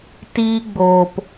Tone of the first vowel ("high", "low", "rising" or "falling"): high